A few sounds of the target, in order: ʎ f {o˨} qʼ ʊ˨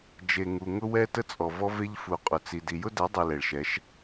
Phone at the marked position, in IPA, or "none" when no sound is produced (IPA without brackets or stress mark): u˨